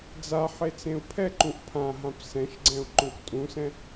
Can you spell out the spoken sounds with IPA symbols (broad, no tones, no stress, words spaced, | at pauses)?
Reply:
d͡za ħet͡sẽu̯pʰɛǃũʔ pʰãɦãp sɛ̃ʃɡ͡ǀɛ̃u̯ ǃõktʼũsɛ̃